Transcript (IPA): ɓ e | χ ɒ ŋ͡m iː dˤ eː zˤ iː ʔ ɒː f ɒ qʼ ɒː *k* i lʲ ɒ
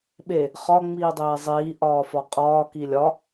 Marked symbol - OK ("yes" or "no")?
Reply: yes